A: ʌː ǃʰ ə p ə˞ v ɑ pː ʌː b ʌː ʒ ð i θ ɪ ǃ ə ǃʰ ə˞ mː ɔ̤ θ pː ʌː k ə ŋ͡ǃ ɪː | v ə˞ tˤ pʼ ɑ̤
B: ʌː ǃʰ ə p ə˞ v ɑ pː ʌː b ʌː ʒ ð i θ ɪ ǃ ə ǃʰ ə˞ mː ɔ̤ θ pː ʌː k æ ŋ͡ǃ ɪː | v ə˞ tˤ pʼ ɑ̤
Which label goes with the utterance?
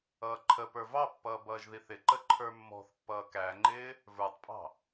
B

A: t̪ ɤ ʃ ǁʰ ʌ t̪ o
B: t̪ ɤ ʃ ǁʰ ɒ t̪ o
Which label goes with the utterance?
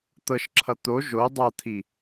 A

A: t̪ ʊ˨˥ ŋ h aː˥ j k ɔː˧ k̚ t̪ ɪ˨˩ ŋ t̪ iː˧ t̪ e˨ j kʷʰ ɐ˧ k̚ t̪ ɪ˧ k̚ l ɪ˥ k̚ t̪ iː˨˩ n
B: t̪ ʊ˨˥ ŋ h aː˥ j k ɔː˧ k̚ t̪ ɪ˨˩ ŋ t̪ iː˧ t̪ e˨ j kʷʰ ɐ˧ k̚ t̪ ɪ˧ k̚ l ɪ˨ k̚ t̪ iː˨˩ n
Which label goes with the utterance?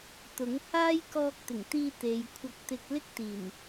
A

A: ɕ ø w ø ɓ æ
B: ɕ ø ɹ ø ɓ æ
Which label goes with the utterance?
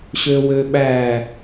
A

